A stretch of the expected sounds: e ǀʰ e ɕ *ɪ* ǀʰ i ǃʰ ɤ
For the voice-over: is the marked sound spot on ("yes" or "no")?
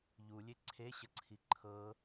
no